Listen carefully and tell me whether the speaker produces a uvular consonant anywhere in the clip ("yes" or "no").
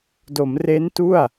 no